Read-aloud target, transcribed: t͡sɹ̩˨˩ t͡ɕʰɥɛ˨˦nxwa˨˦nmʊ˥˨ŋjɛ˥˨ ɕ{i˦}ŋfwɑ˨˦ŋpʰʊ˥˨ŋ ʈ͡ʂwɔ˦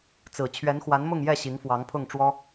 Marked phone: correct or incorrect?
incorrect